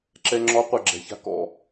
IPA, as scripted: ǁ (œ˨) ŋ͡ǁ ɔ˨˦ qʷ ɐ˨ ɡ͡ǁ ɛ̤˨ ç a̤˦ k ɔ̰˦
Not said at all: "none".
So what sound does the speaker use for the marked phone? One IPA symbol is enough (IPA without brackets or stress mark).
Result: ɛ˨